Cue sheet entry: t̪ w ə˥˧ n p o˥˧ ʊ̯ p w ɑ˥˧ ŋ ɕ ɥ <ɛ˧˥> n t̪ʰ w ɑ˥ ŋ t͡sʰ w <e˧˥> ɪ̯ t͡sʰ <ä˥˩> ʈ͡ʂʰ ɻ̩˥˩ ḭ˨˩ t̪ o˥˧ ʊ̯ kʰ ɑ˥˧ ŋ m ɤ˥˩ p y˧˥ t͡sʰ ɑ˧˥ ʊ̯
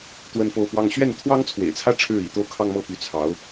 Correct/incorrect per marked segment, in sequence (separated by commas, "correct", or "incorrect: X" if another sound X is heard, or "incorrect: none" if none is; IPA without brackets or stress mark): incorrect: ɛ˥˩, incorrect: ḛ˨˩, incorrect: ä˥